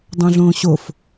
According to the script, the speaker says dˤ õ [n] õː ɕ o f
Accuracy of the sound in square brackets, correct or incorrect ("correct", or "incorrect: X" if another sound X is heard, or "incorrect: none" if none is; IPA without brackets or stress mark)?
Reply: incorrect: ɮ